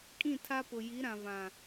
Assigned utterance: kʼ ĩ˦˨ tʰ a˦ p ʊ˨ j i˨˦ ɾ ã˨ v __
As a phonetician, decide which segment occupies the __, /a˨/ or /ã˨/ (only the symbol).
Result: ã˨